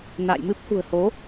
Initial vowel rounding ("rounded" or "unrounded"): unrounded